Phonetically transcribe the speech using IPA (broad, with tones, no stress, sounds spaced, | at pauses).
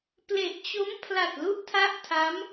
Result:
p l e˨˩ ʔ t͡ɕ o˦˥ m pʰ l a˨˩ t̚ l u˦˥ ʔ tʰ a˦˥ ʔ tʰ a˦˥ m